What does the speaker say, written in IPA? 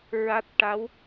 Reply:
ɹ a˦˥ t̚ ʈ a˧˥ w

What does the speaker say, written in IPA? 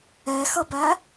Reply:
ɛ x ʌ b æ

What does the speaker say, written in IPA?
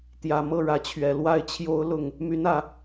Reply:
t̪ j ä˨˩ m ɤ˥˨ ɻ ä˨˦ t͡ɕʰ ɥ ɛ˨˩ l w a˥˨ ɪ̯ t͡ɕʰ j o˦ ʊ̯ l ʊ˥˨ ŋ | m y˨˦ n ä˨˩

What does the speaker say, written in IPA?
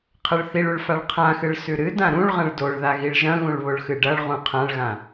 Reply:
qʰ ɐ ɭ θ i ɭ ʉ ɭ f a ɭ qʰ ã x ɨ ɭ s ʉ ɾ ɨ d ã ɾ ũ ɭ ʁ ɐ̃ ɭ d o ɭ ð a ɣ i ɭ ʒ ɐ̃ ɣ ũ ɭ β o ɭ x ɨ ɖ ɐ ɭ ʁ ũ qʰ ã ɭ ɣ ã

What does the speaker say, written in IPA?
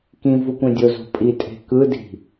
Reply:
k ĩ v u kʷ ẽ dʲ o z o̤ pʼ i tʼ e̤ k ɯ d i̤

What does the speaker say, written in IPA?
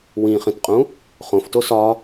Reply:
w ĩ χ ĩ t qʼ ũ | χ õ f t o s ɒ

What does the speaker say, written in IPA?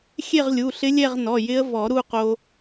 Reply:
xʲ e˥˧ ʁ lʲ u˩˧˩ ɬ ɪ˦˥ lʲ ɛ˥˧ ʁ n ɔ˩˧˩ j ɪ˦˥ ə̯ v ɔ˨˩˦ ɾ u˥˧ q o˧

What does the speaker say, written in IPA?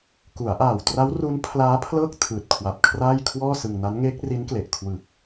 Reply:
k u˩˦ a̯ ʔ aː˨˩ w t r a˦˥ w r u˦˥ n pʰ l aː˦˥ pʰ l ɤː˥˩ k̚ tʰ ɯː˨˩ t̚ kʰ w a˨˩ p̚ kʰ r aː˥˩ j kʰ w ɔː˥˩ s ɯ˧ ŋ n a˦˥ n ŋ eː˦˥ k̚ r i˦˥ n k l e˨˩ ʔ kʰ w ɯ˨˩ k̚

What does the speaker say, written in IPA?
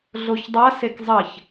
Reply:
ɮ o ç dˤ a s e k zˤ ɐ ç

